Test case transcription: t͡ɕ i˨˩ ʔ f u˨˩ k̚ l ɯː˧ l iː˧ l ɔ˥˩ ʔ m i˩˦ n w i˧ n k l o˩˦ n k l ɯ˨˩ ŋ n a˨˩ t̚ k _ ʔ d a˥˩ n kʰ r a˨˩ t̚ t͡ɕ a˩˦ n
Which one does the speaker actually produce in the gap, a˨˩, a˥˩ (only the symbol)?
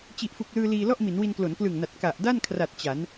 a˨˩